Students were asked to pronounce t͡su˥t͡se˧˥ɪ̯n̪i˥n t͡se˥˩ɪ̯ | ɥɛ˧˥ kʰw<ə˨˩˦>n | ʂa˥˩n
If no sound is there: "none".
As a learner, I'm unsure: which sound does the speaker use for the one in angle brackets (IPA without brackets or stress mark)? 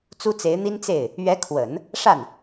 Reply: ə˨˩˦